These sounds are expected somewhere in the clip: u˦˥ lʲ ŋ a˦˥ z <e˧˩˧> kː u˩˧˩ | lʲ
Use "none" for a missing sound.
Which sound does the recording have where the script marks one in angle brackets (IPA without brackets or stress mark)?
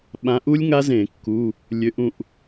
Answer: ẽ˧˩˧